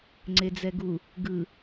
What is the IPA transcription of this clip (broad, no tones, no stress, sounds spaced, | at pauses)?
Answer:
ŋ͡ǀ e d͡z ɛ ɡ u | ɡ ɯ